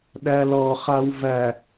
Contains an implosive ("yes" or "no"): yes